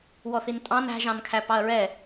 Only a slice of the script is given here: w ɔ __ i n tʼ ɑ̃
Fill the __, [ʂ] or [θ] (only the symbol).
θ